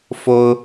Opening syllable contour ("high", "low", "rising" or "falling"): high